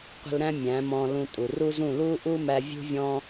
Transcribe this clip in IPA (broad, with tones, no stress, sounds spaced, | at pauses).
qʷ ə̤˧ l ɾ æ̃˦ mʲ æ̃˨˦ m ɔ̃˧ l ũ˧ tʼ u˨ r u˦ z ũ˦˨ l u˦ ʔ u˦ m æ˧ vʲ ṳ˦ vʲ ɔ̃˧